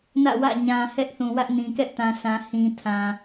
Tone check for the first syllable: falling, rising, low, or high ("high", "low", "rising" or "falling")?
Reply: falling